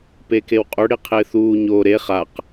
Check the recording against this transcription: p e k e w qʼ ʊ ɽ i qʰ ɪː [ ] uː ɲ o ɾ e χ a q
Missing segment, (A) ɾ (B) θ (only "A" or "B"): B